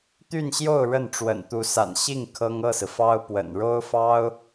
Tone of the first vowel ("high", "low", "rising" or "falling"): falling